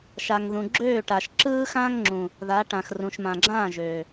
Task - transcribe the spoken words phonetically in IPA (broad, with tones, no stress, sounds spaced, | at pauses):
ʃ a˨ ŋ ð ũ˨ ɡ͡ǁ øː˦˨ ʈ a˨ ʃ ǁ ɯː˦ x ãː˦ ŋ ŋ͡ǁ ũ˨ | ð a˨˦ ʈ ã˨ x r ũ˨ ʃ m ã˨ ɡ͡ǁ ãː˦˨ ʒ øː˨